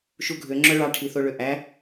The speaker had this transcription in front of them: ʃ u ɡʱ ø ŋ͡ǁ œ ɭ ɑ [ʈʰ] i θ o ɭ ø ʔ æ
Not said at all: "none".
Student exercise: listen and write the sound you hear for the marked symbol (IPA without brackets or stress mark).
ʈʰ